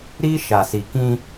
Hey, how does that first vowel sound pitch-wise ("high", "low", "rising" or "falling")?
high